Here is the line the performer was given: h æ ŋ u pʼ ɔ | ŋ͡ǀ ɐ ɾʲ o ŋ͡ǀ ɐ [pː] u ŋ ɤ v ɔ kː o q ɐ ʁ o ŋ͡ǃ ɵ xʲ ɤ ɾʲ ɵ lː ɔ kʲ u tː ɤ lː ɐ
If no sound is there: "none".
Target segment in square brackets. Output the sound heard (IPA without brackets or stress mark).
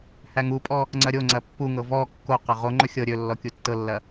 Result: pː